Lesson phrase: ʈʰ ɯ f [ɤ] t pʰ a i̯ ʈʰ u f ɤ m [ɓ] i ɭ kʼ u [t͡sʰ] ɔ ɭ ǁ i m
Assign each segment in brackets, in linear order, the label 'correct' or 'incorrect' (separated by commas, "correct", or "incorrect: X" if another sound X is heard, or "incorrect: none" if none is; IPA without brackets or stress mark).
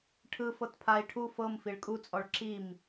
correct, incorrect: f, incorrect: t͡sʼ